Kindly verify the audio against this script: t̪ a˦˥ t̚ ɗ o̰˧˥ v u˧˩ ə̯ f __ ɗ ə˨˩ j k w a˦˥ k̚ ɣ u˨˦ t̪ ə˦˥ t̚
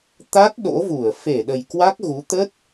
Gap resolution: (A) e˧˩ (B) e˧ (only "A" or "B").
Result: A